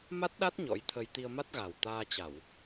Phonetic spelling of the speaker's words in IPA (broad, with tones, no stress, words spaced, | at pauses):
ma˦˥t̚ɗa˦˥t̚ ɲɔ̰˧˥jt̪ʰə˧j t̪i˧ə̯ma˦˥t̚ɣa˨˩w t̪aː˧t͡ɕa˧˩˨w